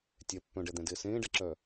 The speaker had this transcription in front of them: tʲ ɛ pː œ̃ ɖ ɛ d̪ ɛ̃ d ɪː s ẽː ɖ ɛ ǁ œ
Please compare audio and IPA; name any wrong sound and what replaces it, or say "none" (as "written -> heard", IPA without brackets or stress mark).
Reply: none